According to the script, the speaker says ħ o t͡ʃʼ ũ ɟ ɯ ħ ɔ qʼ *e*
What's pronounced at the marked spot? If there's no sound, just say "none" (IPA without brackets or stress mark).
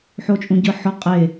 e